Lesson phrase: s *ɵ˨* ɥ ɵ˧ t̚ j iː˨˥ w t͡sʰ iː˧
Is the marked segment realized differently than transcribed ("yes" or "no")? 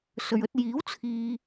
no